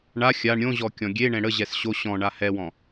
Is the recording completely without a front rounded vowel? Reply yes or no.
yes